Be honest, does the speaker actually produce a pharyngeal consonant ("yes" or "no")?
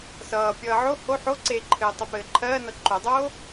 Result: yes